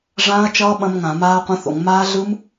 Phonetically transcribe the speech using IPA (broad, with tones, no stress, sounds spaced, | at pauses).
ʐ ãː˦˥ ɐ̯ t͡ʃ ʌː˦˥ ɓ ɐ̃˦˥ m ŋ ã˧˩˧ m aː˦˥ ɐ̯ qʷ ɐ̃˦˥ θ o̰˧˩˧ ŋ m aː˦˥ ɮ ɯ˦˥ m